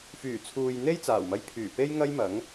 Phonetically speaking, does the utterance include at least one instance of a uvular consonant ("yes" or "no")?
no